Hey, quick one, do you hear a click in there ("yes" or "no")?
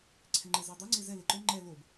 yes